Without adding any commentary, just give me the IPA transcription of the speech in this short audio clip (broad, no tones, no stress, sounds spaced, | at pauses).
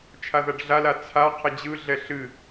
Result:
t͡ʃʰ a ð a ɖ ɮ a l a t͡sʰ a qʰ ə d͡ʑ ɯ ɮ ɛ ɬ ɨ